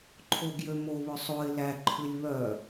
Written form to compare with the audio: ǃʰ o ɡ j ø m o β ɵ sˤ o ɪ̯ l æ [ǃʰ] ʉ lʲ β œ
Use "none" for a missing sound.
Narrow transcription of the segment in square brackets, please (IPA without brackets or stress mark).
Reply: ǃʰ